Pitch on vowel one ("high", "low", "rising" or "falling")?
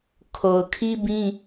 low